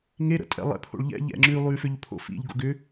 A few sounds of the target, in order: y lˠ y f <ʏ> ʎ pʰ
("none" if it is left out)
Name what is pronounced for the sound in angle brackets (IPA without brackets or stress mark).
ʏ